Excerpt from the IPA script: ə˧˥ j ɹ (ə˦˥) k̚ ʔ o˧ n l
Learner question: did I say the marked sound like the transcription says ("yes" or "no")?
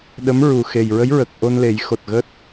no